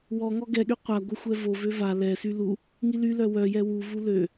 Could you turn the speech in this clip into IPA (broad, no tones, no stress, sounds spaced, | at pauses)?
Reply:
w ɔ ŋ ɔ ɡ ɛ ɠ y qʷ a ɡʷ ə xʷ ɛ v o v ø v a l ɛ s y l u | ŋ i l y l œ w œ j ɛ w u v u l ø